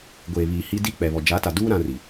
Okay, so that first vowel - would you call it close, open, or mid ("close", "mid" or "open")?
mid